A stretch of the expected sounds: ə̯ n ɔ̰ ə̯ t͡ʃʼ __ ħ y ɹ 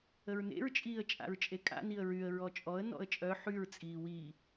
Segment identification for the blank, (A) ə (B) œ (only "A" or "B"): B